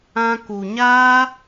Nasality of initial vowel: nasal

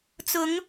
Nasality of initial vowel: oral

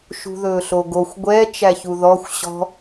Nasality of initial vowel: oral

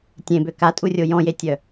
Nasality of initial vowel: nasal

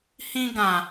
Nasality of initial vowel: nasal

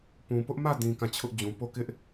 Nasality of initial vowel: nasal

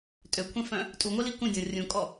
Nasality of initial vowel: oral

